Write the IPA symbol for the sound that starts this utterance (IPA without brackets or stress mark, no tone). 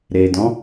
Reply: ɾ